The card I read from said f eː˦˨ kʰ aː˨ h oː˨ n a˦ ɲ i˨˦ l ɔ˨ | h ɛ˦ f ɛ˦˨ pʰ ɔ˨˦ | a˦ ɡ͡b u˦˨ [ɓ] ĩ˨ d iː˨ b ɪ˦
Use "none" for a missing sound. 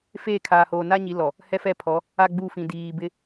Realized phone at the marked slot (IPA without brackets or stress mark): f